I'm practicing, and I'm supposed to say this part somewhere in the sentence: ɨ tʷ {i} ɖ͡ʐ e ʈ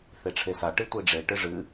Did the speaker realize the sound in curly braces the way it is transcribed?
yes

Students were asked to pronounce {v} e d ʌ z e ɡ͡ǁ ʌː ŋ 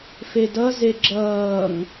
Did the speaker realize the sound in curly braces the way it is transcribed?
no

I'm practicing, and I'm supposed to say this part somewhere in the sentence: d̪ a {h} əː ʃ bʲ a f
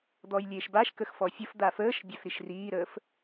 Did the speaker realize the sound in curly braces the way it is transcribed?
no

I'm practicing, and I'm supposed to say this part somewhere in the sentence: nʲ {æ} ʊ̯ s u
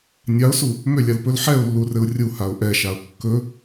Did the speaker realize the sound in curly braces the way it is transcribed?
no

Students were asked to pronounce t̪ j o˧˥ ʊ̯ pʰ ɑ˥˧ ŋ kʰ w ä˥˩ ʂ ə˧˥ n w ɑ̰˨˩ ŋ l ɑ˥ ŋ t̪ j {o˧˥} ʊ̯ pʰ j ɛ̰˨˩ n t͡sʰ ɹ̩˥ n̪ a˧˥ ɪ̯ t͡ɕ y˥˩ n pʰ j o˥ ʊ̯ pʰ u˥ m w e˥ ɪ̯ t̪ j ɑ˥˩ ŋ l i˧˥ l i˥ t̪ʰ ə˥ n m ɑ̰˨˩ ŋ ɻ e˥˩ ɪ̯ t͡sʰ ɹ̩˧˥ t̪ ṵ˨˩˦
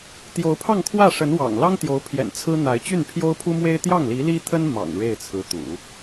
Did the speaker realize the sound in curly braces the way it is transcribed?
yes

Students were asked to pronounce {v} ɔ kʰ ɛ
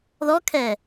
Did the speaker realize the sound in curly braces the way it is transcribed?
no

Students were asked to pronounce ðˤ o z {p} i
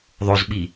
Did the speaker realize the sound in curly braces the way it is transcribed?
no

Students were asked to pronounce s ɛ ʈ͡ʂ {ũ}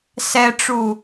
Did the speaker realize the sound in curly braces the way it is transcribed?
no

